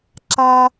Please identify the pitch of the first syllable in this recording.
high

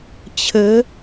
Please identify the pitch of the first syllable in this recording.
rising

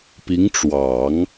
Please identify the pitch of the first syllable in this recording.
rising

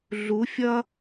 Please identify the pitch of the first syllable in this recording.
rising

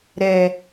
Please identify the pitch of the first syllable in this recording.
low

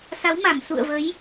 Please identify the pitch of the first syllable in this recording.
rising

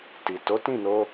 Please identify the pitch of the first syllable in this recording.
low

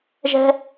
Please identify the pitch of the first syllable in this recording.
high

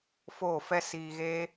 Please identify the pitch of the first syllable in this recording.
falling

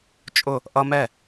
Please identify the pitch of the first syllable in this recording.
falling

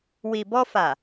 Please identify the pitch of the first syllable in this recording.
low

